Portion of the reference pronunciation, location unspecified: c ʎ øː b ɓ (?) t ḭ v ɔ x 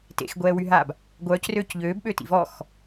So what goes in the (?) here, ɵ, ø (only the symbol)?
ø